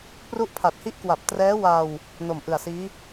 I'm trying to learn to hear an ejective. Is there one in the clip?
no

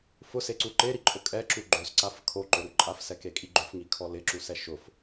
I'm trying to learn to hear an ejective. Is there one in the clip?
yes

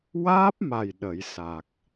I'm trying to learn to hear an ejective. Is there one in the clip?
no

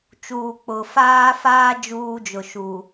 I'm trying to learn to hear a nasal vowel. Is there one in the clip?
no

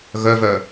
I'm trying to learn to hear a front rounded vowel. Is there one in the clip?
yes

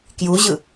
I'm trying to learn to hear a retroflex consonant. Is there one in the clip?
no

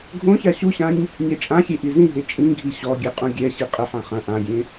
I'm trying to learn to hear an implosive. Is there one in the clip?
no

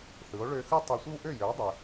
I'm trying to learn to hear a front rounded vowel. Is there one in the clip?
yes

